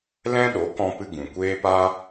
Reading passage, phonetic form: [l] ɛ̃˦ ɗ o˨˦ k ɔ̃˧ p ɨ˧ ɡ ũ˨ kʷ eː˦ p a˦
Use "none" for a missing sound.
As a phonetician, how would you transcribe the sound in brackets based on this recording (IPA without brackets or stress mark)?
l